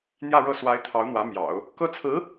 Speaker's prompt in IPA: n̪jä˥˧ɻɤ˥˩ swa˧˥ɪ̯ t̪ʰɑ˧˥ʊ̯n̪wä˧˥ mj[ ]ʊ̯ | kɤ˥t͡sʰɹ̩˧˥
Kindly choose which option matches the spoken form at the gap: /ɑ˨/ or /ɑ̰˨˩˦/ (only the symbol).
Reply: ɑ̰˨˩˦